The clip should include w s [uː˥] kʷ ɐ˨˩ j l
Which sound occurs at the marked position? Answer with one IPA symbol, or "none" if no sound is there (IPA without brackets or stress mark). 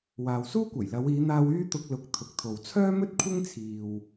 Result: uː˥